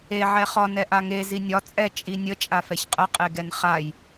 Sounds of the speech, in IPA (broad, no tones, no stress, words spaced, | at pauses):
e ʕɛχɒ nɛʔaŋe zinʲɒ t͡sʼɛ t͡ʃʼinʲə t͡ʃʼafɛçqʼə qʼeɡɛnχaj